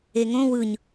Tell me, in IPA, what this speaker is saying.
e ŋ õ w ɯ ɲ

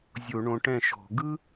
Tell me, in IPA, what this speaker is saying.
zʲ o˧˩˧ ɳ õ˨˦ ʈ ɛ̃˥˩ ʃ ɔ̤˧˩˧ ɡ ɯ˥

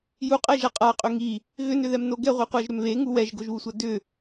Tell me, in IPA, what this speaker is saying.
j u qʼ ɛ ʒ a qʼ a qʼ ʏ ŋ i | ɣ ʏ n ʏ ð ɛ m n o ɡ ɛ ʁʷ i qʷ a ʒ ɾ ʏ m β e ŋ u w ɛ ʒ ɡ o ʒ β u sʷ a d ʏ

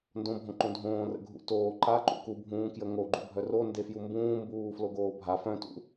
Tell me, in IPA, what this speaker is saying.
n d õ bʱ õ ǃ õ dʱ õː r ə̰ ɡʱ ṵ t oː ǃ a ǃ ṵ k u bʱ ũː k j ə ŋ o ɡ͡ǃ u bʱ œ r o n d e f j u m b ũː m b uː f l o ɡ oː bʱ a f œ̃ t ṵ

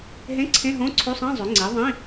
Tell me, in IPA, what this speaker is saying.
ɦ ẽ˧˥˧ ǀʰ ẽ˧˥˧ ɦ õ˧˥˧ ǀʰ o˧˥˧ sˤ ĩ˧˥˧ zˤ ø˩˥ ŋ͡ǀ i˩˥ ðˤ ĩ˧˥˧

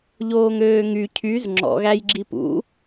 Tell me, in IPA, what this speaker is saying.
ʎ oː ŋ øː ŋ y cʰ y z ŋ͡ǁ ɔ̰ ɣ æ j ɡ͡ǁ i p ṵ

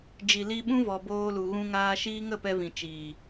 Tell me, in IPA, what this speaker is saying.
d͡ʒ i˨ l i˧ ɓ ũ˦ v ɔ˨ b oː˧ l u˨ ɣ ũ˧ ŋ aː˧ ʃ iː˦ ŋ ə˦˨ p ɛ˧ v ĩ˨ t͡ʃ iː˨

